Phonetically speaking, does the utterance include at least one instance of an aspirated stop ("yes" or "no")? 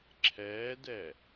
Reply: yes